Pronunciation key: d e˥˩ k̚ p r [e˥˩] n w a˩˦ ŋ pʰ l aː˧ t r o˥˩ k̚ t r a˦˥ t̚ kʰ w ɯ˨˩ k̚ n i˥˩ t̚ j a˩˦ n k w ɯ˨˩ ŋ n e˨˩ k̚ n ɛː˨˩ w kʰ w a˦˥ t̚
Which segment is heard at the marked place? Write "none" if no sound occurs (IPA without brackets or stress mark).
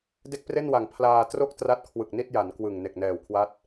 e˥˩